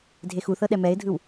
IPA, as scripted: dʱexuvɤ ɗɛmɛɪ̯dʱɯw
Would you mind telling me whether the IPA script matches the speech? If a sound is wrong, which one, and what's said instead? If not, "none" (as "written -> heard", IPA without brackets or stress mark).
v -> θ